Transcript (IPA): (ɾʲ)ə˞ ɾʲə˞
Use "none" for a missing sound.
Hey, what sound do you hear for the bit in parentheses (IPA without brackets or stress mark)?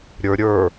ɾʲ